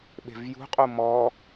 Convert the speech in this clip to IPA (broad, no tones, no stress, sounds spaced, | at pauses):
ɓ e̤ v j ṳ qʼ u m ɔ